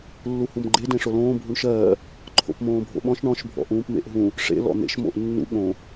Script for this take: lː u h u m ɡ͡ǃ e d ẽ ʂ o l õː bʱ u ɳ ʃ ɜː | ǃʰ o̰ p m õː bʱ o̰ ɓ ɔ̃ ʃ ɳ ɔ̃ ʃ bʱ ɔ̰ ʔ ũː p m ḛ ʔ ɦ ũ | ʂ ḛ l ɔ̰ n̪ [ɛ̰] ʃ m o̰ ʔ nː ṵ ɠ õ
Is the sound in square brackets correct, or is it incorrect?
incorrect